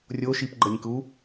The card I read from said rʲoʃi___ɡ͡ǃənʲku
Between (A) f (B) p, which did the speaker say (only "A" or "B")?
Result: B